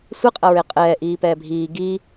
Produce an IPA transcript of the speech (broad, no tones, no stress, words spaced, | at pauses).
sʷiqʼɐɹe qʼɛː ʔiːpɛːbʱiː ɡiː